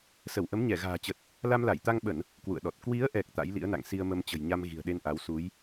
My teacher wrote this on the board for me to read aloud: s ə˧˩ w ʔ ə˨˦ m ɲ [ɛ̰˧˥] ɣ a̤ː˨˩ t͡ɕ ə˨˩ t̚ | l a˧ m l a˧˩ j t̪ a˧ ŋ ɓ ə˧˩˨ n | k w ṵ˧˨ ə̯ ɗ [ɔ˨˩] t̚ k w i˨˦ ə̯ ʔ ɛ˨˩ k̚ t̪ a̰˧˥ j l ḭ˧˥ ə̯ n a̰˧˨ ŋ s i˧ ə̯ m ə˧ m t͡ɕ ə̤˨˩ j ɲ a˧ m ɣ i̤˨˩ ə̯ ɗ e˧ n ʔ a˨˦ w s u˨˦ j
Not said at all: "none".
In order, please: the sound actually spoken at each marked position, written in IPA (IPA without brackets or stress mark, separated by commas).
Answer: ɛ˧˩, ɔ˨˩